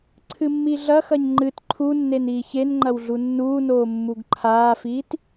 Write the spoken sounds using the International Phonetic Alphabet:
ǀʰɨmːiɮɐxɐɲ ŋ͡ǃɨt ǃʰunːen iːçenŋ͡ǃɐw ɮunːuːnoː mːuɡǃʰaːfiːt

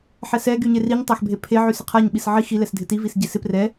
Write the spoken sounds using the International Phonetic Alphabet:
ħɛsɛ ɡyɲeriɲ tˤaxbʱepʰe ʕysɪqʰaɲ ɓisʕi xi lɛsdʱɪti visɟesɪ prɛ

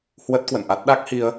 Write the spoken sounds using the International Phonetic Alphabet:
hwə˦˥t̚kwə̰˧˨nʔa˦˥t̚ ɗa˦˥k̚hi˧ə̯

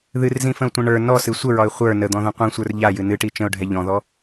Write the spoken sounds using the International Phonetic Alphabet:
ðɨrzĩfə̃ʊ̯tʷɛ̃ ɳə˞ nɔsɨ sʷəɹɒɪ̯ χʷə˞ nəd̪ɔ̃ðə̃ qʷĩsʷə˞r ʎajɨ nɨʈi t͡ʃə̃ʊ̯ɖʱɛ ʎɔ̃ðɔ

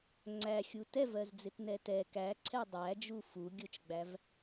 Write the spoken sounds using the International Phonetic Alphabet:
ŋ͡ǀæxʲu tɛvɜzd͡zɪtnɛ tɛ kæǀʰɛ dˤæd͡ʒu fuɡʲʊt͡ʃɡ͡bæv

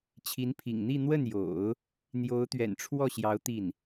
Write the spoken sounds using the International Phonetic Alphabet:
t͡ɕʰi˧˥npʰḭ˨˩ŋn̪i˥˧ n̪wə˥˩njo̰˨˩˦ʊ̯ | n̪jo˧˥ʊ̯t̪ɥɛ̰˨˩nʈ͡ʂʰwɔ˥˩ɕjɑ˧˥ʊ̯ t̪i˥˩n

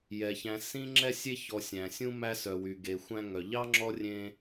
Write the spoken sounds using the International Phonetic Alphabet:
jɛ˩çæ̃˨ sĩ˥ŋ͡ǁɛ˥sʲe˥ çɔ˨sʲæ̃˩sʲũ˥ mæ˦sœ˩wy˩ɡe˩ xʷæ̃˦ŋœ˩ ʎɑ˥ŋ͡ǁɔ˦ rʲẽ˦

